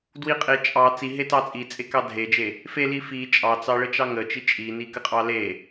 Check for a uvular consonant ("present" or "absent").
present